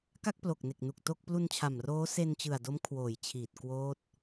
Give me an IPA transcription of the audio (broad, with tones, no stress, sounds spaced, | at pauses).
k a˥˩ k̚ p l o˨˩ k̚ n e˨˩ k̚ n u˨˩ k̚ t o˥˩ k̚ p l u˧ n t͡ɕʰ a˨˩ m r oː˦˥ s e˧ n t͡ɕ ɯ˨˩ a̯ d o˦˥ m kʰ w oː˨˩ j t͡ɕʰ iː˨˩ t̚ k w oː˦˥ t̚